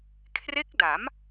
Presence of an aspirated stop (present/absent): present